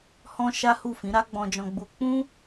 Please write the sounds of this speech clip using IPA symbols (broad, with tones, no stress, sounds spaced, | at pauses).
h ɔ̃˦ ʃ a˦ h u˦˨ f ĩ˨˦ ɾ a˦ ɡ͡b ɔ̃˧ d͡ʒ ɔ̃˧ ɡ͡b u˧ k͡p ũ˦